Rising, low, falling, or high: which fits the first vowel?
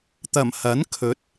low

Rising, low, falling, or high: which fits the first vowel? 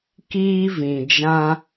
high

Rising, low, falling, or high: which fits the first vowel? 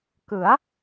rising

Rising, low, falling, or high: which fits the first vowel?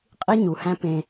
high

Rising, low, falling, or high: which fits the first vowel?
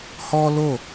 high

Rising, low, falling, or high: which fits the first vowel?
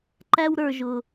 high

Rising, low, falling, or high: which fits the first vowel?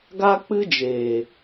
high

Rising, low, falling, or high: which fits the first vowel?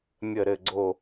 falling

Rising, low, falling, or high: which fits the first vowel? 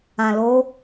low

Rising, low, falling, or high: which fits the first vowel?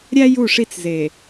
high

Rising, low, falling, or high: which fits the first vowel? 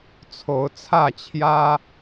rising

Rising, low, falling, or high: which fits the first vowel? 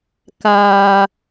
low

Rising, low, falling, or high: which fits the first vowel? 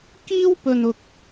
high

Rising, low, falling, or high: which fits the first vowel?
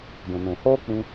low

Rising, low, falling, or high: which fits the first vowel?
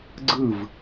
falling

